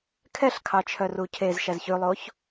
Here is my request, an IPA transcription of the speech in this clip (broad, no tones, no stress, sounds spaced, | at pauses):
kʰ ɛ ɬ kʰ ɑ t͡ʃʰ œ r u cʰ e z ʃ æ z ç ʉ lˠ o ç